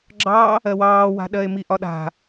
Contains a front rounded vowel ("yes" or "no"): no